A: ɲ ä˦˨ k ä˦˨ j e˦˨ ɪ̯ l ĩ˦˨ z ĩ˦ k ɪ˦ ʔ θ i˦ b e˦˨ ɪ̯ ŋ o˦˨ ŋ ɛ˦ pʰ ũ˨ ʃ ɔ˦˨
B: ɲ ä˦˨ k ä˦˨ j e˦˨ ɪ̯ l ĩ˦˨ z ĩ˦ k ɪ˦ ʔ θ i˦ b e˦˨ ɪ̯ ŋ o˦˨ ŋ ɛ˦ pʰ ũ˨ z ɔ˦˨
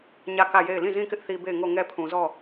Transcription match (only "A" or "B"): B